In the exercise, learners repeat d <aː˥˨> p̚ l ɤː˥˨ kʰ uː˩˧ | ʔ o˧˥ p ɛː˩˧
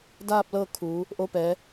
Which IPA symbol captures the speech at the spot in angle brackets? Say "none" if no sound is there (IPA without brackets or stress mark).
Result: aː˥˨